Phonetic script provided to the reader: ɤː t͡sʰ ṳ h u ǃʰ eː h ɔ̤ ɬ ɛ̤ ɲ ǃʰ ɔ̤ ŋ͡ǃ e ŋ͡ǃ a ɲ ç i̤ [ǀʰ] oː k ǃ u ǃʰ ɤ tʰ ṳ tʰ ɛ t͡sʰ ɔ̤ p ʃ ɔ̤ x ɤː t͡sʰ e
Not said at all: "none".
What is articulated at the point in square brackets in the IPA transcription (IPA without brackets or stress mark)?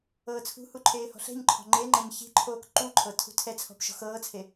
ǃʰ